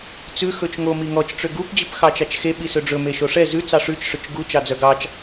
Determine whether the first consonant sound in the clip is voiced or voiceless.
voiceless